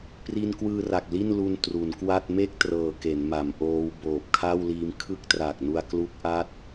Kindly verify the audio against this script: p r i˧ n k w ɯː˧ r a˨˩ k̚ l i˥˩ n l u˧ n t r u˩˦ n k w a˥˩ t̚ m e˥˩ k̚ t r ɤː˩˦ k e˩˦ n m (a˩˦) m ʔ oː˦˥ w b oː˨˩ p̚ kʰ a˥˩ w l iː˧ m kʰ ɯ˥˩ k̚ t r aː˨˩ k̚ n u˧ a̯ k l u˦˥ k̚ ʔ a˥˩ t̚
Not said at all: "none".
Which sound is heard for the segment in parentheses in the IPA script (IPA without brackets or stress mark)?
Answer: a˩˦